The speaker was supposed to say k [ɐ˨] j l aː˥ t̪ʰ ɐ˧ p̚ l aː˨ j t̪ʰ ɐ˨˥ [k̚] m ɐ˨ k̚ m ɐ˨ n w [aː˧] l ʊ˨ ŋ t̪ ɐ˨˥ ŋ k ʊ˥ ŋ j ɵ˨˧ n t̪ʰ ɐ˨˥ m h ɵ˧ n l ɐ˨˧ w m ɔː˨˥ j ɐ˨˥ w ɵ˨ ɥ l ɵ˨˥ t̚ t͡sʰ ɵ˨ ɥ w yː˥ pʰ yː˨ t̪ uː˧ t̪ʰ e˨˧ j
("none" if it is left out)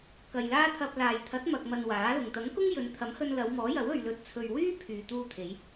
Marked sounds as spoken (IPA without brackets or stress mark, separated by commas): ɐ˨, t̚, aː˨˥